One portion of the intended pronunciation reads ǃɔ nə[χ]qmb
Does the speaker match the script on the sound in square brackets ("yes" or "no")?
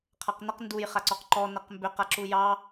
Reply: no